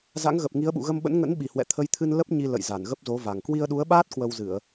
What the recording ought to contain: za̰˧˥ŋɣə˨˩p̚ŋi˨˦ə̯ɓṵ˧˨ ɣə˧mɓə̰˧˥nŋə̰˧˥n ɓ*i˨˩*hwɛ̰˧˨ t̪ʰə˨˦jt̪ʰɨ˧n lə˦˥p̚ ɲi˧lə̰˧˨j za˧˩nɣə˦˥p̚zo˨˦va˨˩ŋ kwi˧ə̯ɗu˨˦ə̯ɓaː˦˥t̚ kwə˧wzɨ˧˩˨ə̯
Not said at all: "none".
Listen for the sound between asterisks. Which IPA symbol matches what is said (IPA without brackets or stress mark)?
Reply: i˨˩